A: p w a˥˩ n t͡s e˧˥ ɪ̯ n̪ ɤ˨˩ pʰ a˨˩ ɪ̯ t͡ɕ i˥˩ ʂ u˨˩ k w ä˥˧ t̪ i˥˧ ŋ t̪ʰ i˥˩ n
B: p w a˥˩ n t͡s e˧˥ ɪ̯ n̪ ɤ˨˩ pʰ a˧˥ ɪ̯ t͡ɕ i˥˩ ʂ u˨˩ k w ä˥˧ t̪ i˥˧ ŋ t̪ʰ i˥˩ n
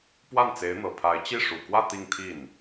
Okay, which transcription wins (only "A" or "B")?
B